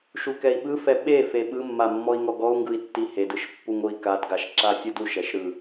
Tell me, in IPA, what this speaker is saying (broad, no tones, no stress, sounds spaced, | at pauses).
ʃ u k ɛ i̯ ɓ ɯ f ɛ ɓ e f e ɓ ɯ mː a mː ɔ i̯ ŋ ɔ ɡ ɔ u̯ ŋ ɡ ɯ i̯ tː i h e d ɯ ʃ pː u ŋ o i̯ k a d ɡ a ʃ ǁ a fʲ ɯ d u ʃ ɛ ʃ ɾ ɯ